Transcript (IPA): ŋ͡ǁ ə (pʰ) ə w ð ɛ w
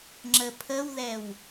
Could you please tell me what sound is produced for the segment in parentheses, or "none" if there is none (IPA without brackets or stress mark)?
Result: pʰ